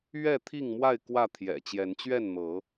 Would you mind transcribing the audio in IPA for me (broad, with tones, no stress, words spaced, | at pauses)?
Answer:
ɥɛ˥˨t̪ʰi˥˨ŋmwa˥˨ɪ̯ kwä˥˨ t̪ʰjɛ̰˨˩t͡ɕjɛ˨˦nt͡ɕɥɛ˥˨nn̪ɤ˨˦